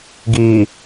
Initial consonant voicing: voiced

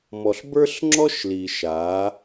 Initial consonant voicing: voiced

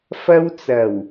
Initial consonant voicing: voiceless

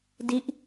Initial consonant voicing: voiced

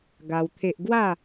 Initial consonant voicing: voiced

